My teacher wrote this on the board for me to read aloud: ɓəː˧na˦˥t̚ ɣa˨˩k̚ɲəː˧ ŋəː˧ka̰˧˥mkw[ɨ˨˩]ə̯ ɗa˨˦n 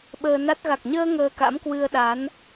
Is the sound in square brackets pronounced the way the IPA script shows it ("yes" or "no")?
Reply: no